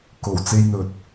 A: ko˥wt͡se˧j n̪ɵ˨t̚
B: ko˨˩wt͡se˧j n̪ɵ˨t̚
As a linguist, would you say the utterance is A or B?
B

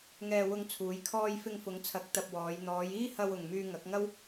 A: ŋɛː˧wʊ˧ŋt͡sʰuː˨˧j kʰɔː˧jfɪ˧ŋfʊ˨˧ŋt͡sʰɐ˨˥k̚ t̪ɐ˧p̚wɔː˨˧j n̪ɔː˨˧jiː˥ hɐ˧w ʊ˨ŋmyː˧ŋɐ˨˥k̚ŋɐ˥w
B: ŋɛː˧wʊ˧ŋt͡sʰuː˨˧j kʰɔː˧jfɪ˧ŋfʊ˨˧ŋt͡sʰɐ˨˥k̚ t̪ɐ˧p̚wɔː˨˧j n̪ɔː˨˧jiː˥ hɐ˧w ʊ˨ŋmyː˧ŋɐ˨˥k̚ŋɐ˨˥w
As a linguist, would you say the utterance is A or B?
A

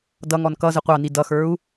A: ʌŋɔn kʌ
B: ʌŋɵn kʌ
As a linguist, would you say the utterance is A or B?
A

